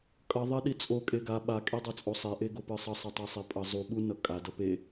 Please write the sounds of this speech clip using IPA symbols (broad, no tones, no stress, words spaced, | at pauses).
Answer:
kʼʌ ðˤɛɗit͡sʼo kʼeɡa ɓa kʼedˤɛt͡sʼosˤɛ ʔeɡopɯsˤʌ sˤʌtˤɛsˤepʼʌ zˤu ɓu nʌkʼa dʌpe